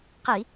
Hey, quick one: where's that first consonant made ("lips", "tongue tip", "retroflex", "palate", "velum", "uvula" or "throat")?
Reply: uvula